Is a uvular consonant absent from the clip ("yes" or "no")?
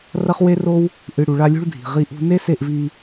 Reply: no